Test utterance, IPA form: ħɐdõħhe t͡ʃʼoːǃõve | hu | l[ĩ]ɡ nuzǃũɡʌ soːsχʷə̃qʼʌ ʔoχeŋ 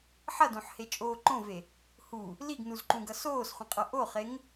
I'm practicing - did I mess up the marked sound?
yes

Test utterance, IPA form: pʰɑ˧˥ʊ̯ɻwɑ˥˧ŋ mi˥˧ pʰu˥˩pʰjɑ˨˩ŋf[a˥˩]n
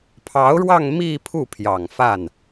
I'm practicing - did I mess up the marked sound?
no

